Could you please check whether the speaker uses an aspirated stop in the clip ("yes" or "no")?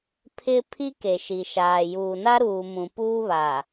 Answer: yes